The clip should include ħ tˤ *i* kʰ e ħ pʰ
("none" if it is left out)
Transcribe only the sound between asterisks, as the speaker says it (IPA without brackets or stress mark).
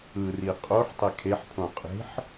e